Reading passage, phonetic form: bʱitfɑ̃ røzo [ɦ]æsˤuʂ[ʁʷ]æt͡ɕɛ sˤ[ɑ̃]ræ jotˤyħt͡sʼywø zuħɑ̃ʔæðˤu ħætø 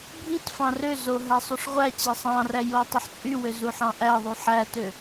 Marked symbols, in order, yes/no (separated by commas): yes, yes, yes